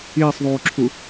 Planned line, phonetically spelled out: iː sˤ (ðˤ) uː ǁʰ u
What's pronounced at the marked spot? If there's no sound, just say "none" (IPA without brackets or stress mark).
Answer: ðˤ